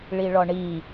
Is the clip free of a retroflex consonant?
no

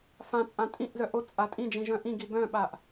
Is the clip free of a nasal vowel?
no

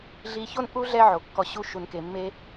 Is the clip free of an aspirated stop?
yes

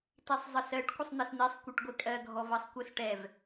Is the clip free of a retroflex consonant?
no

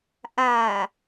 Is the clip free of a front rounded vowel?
yes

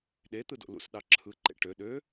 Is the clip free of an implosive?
no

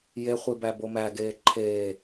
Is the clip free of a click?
no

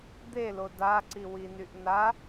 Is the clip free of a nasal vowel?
yes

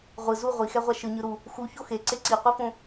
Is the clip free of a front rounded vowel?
yes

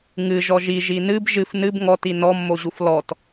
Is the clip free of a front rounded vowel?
yes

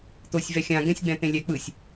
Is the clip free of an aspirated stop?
yes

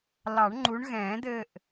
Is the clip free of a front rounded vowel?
yes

